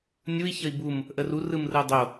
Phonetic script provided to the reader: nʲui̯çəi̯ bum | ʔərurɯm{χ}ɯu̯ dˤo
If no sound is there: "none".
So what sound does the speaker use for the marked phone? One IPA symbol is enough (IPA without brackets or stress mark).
r